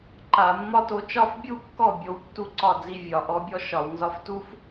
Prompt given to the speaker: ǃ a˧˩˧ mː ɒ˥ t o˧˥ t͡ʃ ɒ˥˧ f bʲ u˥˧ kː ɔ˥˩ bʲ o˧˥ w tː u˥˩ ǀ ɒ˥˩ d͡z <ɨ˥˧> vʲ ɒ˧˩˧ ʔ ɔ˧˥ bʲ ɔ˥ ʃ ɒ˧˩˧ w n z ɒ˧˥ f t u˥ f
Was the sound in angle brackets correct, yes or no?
no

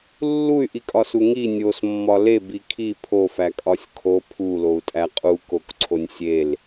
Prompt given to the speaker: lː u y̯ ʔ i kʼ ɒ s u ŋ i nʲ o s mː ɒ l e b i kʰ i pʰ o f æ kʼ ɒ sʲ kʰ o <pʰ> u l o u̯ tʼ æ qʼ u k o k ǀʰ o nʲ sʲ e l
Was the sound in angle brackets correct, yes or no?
yes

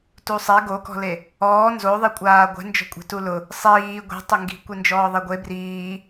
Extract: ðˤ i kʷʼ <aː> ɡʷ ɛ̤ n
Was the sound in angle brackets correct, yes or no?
yes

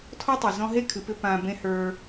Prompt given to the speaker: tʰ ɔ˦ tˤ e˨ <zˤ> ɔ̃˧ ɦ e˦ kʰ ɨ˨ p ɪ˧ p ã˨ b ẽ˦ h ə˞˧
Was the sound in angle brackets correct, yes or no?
no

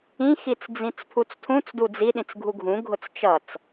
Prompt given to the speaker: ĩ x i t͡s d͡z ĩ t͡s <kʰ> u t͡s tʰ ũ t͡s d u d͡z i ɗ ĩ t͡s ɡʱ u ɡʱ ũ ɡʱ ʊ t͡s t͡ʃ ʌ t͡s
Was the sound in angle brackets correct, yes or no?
no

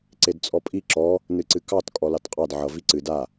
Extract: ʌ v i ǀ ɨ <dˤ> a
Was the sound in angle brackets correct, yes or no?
no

